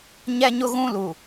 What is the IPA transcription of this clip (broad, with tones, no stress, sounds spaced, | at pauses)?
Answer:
ɲ ɛ˦ ɲ ʊ˦ ɣ ũ˦ l u˨